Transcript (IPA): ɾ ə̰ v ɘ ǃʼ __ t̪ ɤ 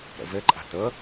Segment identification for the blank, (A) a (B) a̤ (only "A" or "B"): B